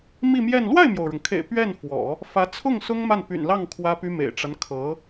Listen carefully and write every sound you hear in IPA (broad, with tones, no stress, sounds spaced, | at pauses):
m i˥˧ m j ɛ˥˧ n l w a˥˩ ɪ̯ m j o˩ ʊ̯ ɻ ʊ˩ ŋ kʰ ḛ˨˩ ɪ̯ p ɥ ɛ˥˩ n f w ɔ̰˨˩˦ | f ä˧˥ t͡sʰ ʊ˥˩ ŋ s ʊ˥ ŋ m a˥˩ n p y̰˨˩ n l ɑ˥˩ ŋ kʰ w ä˥ p y˥ m ḛ˨˩ ɪ̯ ʈ͡ʂ a˦ n kʰ ɤ˧˥